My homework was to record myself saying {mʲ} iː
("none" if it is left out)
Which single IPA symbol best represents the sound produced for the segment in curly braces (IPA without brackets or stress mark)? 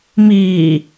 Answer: m